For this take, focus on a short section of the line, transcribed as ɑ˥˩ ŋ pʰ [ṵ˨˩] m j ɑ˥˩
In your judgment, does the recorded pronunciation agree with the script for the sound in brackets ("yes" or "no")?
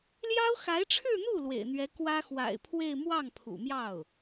yes